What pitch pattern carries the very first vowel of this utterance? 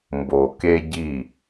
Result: low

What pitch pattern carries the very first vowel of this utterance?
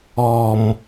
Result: low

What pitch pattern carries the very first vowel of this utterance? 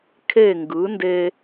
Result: falling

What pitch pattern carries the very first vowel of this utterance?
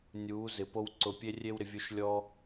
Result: rising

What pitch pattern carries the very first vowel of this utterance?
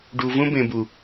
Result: low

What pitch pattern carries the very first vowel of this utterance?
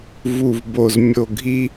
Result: low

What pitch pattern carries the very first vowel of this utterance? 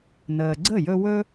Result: low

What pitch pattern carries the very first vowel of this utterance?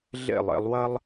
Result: falling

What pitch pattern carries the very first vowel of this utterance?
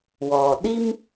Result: low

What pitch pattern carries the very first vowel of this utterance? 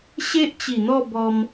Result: high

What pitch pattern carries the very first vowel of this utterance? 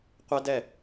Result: high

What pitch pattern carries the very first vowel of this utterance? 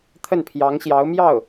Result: falling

